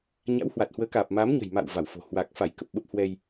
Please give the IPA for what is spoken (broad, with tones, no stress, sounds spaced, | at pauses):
ɲ a̰˧˥ w h w a˨˩ t̚ h w əː˨˦ k aː˨˩ p̚ m aː˨˦ m ɲ ə̤˨˩ j m a̰˧˨ w v a˧˩ w f o̤˨˩ h w a˨˩ k̚ f a˧˩ j k ə˨˩ p̚ ɓ ə˦˥ p̚ h w ɛ˧ j